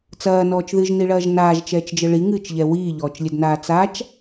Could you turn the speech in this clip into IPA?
t͡s ɐː n ɔː t͡ʃ ð ɨ ʒ n i ɭ ɐː ʒ n aː ʒ t͡ʃ ɛː t͡ʃ d͡ʒ ɘ ɭ i ŋ ɨː t͡ʃ ʎ ɛ w iː ʎ ɔː t͡ʃ lʲ ɘ d n aː t͡s a t͡ʃ

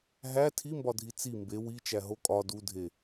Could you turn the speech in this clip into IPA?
ɦ æ tʰ i m b ɒ dʱ i t͡s i m b e w i t͡ʃ æ ɦ o kʼ ɒ d u dʱ e

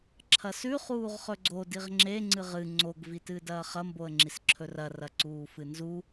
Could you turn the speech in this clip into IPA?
ǁʰ ɐ s ʉ χ uː ʁ χ ɵ ɡ͡ǀ o d i ʁ ŋ͡ǁ e ŋ͡ǀ ɨ ʁ ɨ ŋ͡ǀ o ɡ v i t ɨː d ɐː χ ɐ m b o ə̯ ŋ͡ǁ i s ǁʰ ɵ r ɐ r ɐ ǀ uː f ɨ n z u

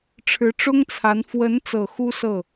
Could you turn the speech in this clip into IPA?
ʈ͡ʂʰ ɻ̩˧˥ ʈ͡ʂ ʊ˥ ŋ t͡sʰ a˧˥ n f w ə˧˥ n t͡s ɤ˨˩ x u˥ s ɤ˥˩

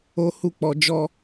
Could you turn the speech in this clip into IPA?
o˦ h u˦˨ k͡p ɔ˧ d͡ʒ ɔ˦

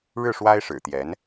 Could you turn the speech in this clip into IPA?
ɻ ɻ̩˥˩ ʂ w a˥ ɪ̯ ʂ ɻ̩˨˩ t̪ j ɛ˧˥ n

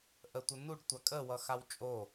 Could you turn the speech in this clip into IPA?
ʔ ə tʷ ə n u ɖ tʷ a kʼ ə w ʌ x a w t͡ʃʼ o

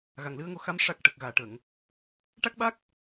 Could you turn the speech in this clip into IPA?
ɣ a˨˩ ŋ l ɨ˧ ə̯ ŋ o˧ x a˧˥ m ʂ a˨˩ k̚ ʈ ə˨˩ k̚ ɣ aː˨˩ ʈ ə˨˩˨ ŋ | ʈ a˦˥ k̚ ɓ a˦˥ k̚

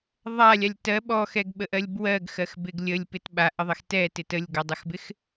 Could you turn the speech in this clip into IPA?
ðˤ a lʲ a lʲ t ɜ ɓ ɔ x ɛ ɡ ɓ ə ʔ ɜ lʲ b w ɜ ɡ x ɜ x b ɪ ɡ lʲ ə lʲ p ɪ t ɓ a ʔ ə ðˤ ɪ x t ɛ t ɪ t ə lʲ ɡ ɔ dˤ ɪ x b ɪ x

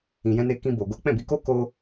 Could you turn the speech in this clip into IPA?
ĩ˧ j ɛ̃˦ n e˦ k ĩ˦ b o˧ ɡ o˦ k͡p ɛ̃˦˨ b i˧ k o˦ k o˦

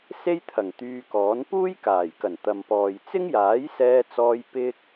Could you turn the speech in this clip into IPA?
s e˥ j t̪ʰ ɐ˨˩ ŋ t̪ yː˧ k ɔː˨˥ n p uː˥ j k aː˨˩ j k ɐ˨˩ n t̪ ɐ˨ m p ɔː˨ j t͡s ɪ˥ ŋ j aː˨˥ j s ɛː˧ t͡s ɔː˧ j p ɪ˥ k̚

